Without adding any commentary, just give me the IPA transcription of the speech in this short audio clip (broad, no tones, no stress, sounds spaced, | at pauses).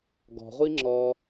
ɡ ɔ̤ ʁʷ i ŋ͡ǁ ɔː